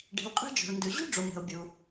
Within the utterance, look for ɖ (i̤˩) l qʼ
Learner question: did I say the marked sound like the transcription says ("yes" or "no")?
yes